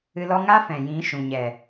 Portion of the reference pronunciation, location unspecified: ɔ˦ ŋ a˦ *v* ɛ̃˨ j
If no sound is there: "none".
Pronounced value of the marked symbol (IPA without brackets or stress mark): f